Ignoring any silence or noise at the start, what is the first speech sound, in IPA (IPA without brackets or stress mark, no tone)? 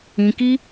ĩ